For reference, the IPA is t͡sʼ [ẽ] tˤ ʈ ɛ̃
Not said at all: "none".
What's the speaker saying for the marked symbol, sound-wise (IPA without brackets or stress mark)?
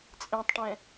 ẽ